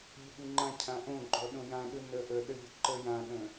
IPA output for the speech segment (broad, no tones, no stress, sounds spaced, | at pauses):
ʎ ə ɠ ɨ ŋ͡ǃ ã cʰ ã ʔ õ ɡ͡ǃ ɔ ɗ õ j ã ɗ ɯ n ə ʔ ə ɗ ə ʎ ə ǃ ə j ã ɠ ə̃